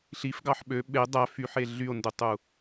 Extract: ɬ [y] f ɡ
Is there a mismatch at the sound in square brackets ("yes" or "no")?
yes